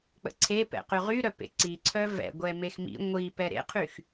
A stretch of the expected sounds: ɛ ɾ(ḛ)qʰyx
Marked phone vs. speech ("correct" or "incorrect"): correct